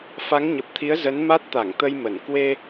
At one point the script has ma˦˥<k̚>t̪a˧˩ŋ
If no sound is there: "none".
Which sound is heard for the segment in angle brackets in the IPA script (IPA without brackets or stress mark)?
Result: t̚